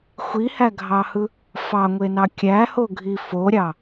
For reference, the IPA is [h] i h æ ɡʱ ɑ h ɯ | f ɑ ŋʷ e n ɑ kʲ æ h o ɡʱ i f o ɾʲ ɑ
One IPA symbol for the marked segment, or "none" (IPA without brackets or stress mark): xʷ